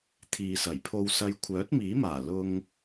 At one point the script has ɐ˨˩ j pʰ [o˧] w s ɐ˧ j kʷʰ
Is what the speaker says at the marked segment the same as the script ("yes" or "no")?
yes